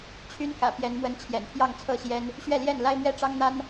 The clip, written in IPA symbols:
t͡ɕʰy˦nkä̰˨˩ pjɛ˨˦nmwə˨˦n t͡ɕʰjɛ̰˨˩npʰjɑ˥˨ŋt͡sʰɤ˥˨ɕjɛ˦n | ɕɥɛ˥˨ljɛ˥˨n la˦ɪ̯mɥɛ˦ ʈ͡ʂɑ˦ŋn̪a˦n

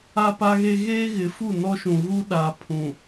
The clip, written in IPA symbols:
a˦pa˦ɣe˦ ɣeː˦ɣɪ˨˦fu˦˨ nɔ˦ʃũ˨ ɣu˦ ɗa˨ pʰũ˨

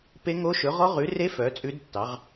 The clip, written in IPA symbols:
pe˦˥ŋo˦˥ʃɵ˨˥ ʁɔ˦˥ʁʉ˨˥re˦˥ fœ˨˥t͡sʼʉ˦˥dtːɑ˨˥ʁ

